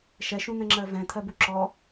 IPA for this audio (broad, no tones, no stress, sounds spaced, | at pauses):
ʃ ɛ ʃ ũ n̪ ɛ̃ ŋ͡ǁ ɜ v ɛ̃ t̪ʰ ɜ b u ǁ ɔ